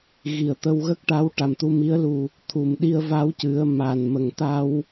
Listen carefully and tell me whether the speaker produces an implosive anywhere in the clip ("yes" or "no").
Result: yes